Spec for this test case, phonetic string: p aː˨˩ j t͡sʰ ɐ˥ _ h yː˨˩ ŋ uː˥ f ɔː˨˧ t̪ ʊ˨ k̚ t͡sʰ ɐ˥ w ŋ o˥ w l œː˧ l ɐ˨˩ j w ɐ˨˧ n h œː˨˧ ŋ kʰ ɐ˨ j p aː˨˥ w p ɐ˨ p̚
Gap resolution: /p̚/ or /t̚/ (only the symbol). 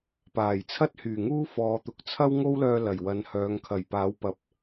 t̚